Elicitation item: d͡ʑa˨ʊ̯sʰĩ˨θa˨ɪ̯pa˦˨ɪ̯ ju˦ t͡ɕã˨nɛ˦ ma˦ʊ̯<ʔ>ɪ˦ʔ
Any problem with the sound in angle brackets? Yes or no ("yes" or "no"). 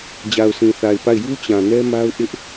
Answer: no